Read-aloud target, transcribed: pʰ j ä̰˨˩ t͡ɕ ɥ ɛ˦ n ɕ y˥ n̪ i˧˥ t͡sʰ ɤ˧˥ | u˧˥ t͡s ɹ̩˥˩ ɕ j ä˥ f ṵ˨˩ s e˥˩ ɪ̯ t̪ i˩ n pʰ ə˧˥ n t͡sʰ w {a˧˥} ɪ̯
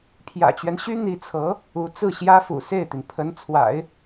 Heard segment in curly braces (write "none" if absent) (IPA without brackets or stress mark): a̰˨˩˦